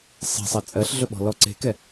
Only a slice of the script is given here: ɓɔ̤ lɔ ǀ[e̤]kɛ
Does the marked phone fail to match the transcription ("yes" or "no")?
no